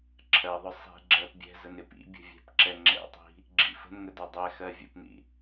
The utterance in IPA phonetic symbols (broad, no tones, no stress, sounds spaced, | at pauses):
ǁʰ ɜ ðˤ ʊ sˤ i̤ ɡ͡ǁ ɜ p bʲ ɛ̤ z ə n ɪ p ḭ bʲ ə̤ vʲ ɛ̤ p ǁ ɛ ŋ͡ǁ ɛ̰ tˤ i̤ | ɡ͡ǁ ḭ f ə̤ n ŋ ə d ɒ dˤ ɛ x ɜ vʲ ə̰ p n ḭ